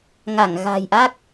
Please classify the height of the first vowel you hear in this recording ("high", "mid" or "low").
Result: low